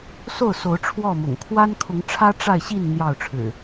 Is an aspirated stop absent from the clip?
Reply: no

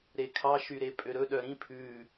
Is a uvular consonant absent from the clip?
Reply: yes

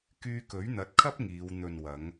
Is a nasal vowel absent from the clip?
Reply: yes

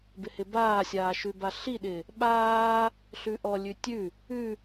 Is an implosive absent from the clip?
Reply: no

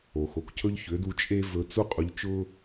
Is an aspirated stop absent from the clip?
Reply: no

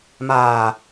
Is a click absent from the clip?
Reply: yes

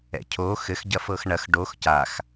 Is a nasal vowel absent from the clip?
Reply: yes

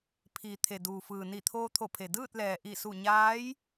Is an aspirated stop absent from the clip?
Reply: no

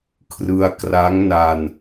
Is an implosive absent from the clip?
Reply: yes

